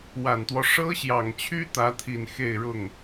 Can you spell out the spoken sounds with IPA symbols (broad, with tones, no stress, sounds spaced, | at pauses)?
w a˨˩ n t̪ w ɔ˦ ʂ ɤ˥ ɕ j ɑ˨˩ ŋ t͡ɕʰ y˥ t̪ ä˧˥ t̪ʰ i˨˩ n x e˥˧ ɪ̯ ɻ ʊ˥˩ ŋ